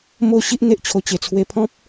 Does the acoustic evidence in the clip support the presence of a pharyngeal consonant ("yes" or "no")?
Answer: no